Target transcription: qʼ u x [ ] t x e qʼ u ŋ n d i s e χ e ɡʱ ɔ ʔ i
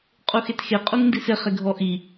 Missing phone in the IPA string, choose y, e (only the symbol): e